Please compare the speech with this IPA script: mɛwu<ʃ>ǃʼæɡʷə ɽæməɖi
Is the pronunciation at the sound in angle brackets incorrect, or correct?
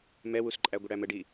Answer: incorrect: s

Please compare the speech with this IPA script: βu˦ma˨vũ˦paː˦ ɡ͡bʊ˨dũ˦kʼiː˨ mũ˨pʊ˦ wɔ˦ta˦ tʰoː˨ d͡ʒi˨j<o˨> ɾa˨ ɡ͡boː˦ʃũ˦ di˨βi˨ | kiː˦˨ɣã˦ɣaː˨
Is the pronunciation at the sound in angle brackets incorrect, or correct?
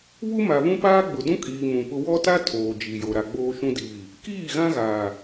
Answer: correct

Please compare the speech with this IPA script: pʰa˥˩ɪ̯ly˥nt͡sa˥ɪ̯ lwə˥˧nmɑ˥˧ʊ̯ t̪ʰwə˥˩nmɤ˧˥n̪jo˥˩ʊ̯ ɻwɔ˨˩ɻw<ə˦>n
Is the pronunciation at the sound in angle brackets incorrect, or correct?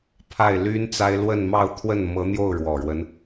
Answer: correct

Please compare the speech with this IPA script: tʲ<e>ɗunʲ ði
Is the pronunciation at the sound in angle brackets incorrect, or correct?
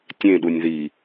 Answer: incorrect: ẽ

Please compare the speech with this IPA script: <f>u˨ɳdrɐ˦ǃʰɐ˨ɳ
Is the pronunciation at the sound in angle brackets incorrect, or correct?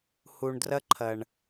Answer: incorrect: h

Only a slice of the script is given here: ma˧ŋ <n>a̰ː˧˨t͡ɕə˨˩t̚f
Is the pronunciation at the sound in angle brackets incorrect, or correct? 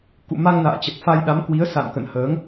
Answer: correct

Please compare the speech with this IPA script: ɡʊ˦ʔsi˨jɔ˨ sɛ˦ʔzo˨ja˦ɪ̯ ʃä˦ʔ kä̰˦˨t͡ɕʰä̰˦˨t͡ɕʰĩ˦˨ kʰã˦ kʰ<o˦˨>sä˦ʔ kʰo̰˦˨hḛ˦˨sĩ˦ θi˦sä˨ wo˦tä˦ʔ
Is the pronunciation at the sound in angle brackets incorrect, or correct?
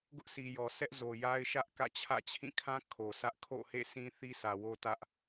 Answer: incorrect: o˨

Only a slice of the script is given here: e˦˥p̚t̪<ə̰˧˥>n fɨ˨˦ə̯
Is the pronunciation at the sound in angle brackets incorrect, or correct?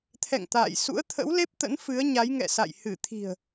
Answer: correct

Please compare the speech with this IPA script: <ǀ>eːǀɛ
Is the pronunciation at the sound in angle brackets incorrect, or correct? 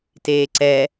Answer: incorrect: t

